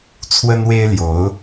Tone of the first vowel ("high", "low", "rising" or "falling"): high